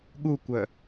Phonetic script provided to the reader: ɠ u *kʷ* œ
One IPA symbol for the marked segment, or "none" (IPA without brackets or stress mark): kʷ